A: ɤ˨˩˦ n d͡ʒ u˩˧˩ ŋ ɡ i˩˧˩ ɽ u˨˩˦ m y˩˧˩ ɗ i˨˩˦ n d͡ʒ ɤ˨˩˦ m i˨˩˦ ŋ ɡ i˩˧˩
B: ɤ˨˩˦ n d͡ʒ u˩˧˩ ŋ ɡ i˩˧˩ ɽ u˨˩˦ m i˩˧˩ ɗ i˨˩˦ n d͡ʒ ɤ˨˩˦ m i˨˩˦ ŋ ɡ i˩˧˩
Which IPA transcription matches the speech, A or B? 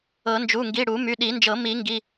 A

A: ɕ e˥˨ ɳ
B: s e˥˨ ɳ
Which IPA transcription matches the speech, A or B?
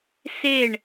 B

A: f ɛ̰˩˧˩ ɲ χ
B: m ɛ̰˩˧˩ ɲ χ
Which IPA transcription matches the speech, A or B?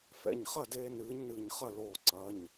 A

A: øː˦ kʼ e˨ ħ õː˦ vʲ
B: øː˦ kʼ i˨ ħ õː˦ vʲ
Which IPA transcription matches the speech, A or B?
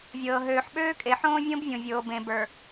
A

